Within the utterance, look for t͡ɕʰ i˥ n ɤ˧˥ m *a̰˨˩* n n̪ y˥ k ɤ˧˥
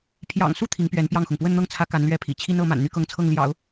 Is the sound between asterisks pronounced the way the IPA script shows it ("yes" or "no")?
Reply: yes